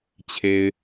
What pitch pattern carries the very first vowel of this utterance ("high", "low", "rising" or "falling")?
low